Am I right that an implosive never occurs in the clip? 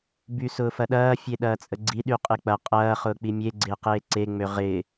no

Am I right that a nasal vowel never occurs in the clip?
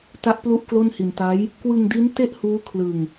yes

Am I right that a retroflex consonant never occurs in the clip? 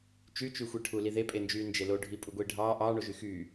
no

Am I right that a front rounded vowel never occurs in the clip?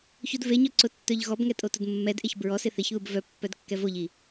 no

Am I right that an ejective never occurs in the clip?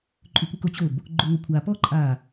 no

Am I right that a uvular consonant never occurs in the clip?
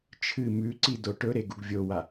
yes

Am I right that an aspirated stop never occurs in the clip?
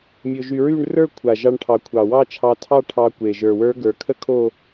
no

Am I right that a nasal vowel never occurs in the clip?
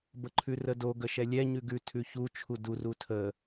yes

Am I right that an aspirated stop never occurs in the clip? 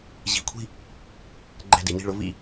no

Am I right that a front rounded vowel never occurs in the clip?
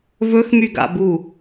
no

